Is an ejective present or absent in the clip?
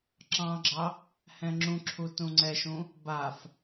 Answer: absent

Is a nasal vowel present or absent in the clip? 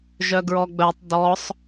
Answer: absent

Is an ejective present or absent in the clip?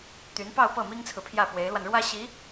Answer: absent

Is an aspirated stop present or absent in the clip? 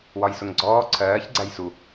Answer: present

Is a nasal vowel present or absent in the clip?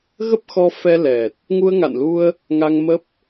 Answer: absent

